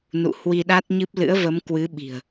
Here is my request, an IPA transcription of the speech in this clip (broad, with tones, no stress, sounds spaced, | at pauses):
n ṵ˧˨ h w i˧ ɗ a˦˥ t̚ ɲ ɨ˦˥ p̚ l ɨ̰˧˥ ə̯ v ə˨˦ m k w ɨ˨˦ ɓ i̤˨˩ ə̯